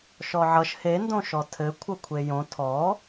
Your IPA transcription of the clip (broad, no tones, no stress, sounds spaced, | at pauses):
ʃ ɔ ʕ ʌ ʃ h e n d õ ʃ ɔ tʰ ɘ kʷʰ ʌ kʷʰ e j õ tʰ ɔ